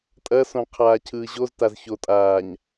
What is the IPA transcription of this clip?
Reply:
tʼ ɐ s õ qʰ aː cʰ ɯː ʑ o z t a z ç o tʼ aː ɲ

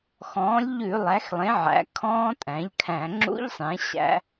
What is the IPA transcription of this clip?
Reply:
x ɔ̃ː˩˥ lʲ ʎ ʉ˧˩˧ lˠ æ˩˥ x lˠ ẽ˩˥ ʕ æ̰˩˥ kʰ ɔ̃ː˦˥ tʼ æ̃˩˥ ʎ kʰ æ̃˧˩˧ ŋ͡ǁ ṵ˦˥ ʎ sˤ ẽ˩˥ ɕ æ̰˦˥

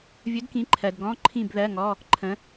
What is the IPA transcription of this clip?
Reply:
vʲ ɵ˨˥ d k ĩ˨˥ ǃʰ ɜ˨ d ɡ ɔ̃˧˥˧ ǃʰ ĩ˥˨ b ð ɜ˧˥˧ ŋ ɔ˧˥˧ | ǃʰ ə̃˨˥

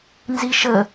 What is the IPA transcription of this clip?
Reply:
n z i ʃ ə

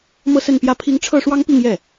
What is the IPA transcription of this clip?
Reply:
m ɤ˥˧ s ə˥˧ n p j ä˥˩ pʰ i˥ ŋ ʈ͡ʂʰ ɤ˥˩ ʂ w ɑ˥ ŋ p i˥˧ ŋ j ɛ˥˩

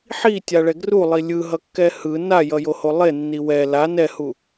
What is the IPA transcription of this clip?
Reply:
ħ i tʲ a ɭ ɛ ɡ r u lˠ i lʲ ɯ ɦ ʌ kː ɛ h ɯ n a j ʌ j o h o lˠ e nː i w ɛ l a n ɛ h u

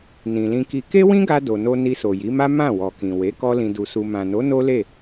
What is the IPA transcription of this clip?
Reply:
n ĩ˨ l ĩ˧ k i˧ k e˦ w ĩ˦ ɡ a˧ d o˨ n o˧ n i˧ s o˨ j i˨˦ m a˦ m ã˦˨ w ɔ˨ k ĩ˨ w e˨˦ k ɔ˦ l ĩ˧ d u˧ s u˧ m ã˨ n o˨˦ n o˦ l e˦˨

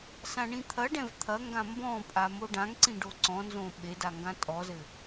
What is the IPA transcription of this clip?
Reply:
s ã ɳ ĩ t̪ʰ ɐ ɖ ɛ̃ v t̪ʰ ɐ ŋ ɡ ã m b ɔ̃ pʼ a m o ɖ ã ŋ ǀ ĩ ɖ o ǀ ɔ̃ n z õ ɓ e d a ŋ ɡ ã tʼ ɔ z ɘ

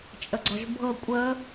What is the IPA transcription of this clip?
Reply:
t͡ʃʼ ə ɡ͡ǀ ɔ ʒ bʱ ɤ kʷʼ ə

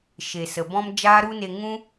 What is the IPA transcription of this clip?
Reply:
ʃ e˨ s ə˨ b ɔ̃˦ m d͡ʒ aː˦ ɾ u˦ n e˧ ŋ ũ˦

